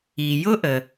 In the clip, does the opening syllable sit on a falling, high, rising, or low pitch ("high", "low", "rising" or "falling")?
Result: low